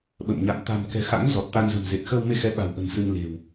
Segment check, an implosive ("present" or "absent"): present